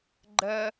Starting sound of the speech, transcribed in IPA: ɡ͡ǃ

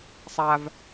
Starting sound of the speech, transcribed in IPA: sˤ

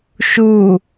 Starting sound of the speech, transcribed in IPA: ʃ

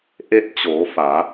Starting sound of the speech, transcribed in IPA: ʔ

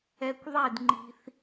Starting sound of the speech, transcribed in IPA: ɛ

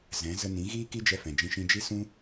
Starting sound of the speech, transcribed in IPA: z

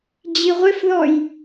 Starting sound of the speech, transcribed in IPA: d͡ʑ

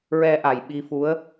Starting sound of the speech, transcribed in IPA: ɹ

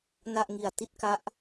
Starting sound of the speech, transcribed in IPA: n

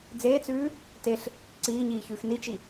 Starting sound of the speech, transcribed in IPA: d͡z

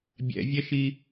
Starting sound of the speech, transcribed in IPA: bʲ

